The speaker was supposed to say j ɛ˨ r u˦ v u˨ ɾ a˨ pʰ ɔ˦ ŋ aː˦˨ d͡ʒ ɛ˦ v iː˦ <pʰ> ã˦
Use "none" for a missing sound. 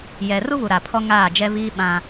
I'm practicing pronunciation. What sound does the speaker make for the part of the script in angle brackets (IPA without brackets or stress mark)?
ɓ